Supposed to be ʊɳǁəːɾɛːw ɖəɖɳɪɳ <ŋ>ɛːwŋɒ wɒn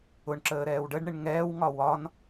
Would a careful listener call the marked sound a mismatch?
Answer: no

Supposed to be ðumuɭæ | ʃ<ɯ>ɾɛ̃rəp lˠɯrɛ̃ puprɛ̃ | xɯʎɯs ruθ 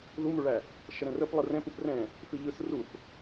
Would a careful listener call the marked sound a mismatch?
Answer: yes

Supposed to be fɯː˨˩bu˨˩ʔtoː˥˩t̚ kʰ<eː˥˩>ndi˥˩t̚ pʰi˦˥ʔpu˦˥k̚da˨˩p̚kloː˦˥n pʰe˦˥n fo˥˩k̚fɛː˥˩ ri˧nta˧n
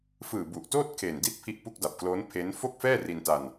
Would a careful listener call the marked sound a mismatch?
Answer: yes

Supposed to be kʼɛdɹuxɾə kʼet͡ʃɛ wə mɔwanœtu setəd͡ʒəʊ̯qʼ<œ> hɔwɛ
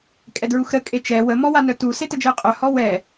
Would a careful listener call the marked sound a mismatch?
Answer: no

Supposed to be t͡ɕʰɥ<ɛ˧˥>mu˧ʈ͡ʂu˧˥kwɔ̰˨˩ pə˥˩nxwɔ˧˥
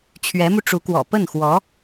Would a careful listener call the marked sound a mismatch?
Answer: no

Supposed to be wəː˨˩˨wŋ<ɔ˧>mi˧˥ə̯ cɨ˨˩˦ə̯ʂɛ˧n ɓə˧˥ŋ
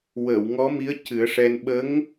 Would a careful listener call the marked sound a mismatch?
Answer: yes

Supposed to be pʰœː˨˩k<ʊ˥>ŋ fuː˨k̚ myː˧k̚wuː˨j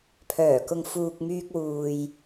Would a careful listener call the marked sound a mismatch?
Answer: yes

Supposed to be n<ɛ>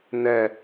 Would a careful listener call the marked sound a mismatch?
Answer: no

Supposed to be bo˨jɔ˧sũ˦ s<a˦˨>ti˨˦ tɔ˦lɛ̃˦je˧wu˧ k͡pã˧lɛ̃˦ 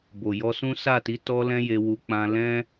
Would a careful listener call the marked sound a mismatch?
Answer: no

